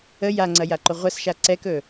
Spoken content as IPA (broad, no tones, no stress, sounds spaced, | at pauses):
ə j a ŋ͡ǀ ɐ j a ǃ ʊ ʁʷ ɐ s ʃ a ǀ ɛ k ɵ